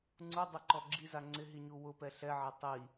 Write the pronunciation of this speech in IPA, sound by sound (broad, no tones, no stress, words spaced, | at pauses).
ŋ͡ǀudˤɛǃɔ ɡ͡ǁiza ŋ͡ǀɪɦiɲu wʊpɛ ɬɛʕa tˤi